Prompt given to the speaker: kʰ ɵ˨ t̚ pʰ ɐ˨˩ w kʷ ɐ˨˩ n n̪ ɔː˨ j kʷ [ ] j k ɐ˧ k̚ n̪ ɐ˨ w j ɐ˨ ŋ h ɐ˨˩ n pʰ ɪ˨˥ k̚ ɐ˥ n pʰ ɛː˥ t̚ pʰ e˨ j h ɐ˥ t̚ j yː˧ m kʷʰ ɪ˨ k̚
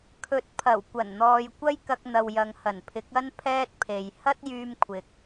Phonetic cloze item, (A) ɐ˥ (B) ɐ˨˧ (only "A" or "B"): A